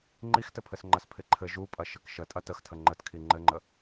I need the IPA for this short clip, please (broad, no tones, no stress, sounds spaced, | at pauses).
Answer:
ŋ͡ǃ i x t ɘ pʰ ɘ s ŋ͡ǃ ɐ s pʰ ɪ ǃʰ ɘ ʒ u pʼ ɐ ʃ ɘ k ʃ ə tʼ ɐ t ə x tʰ ə ŋ͡ǃ ə t kʰ i ŋ͡ǃ ɘ ŋ͡ǃ ə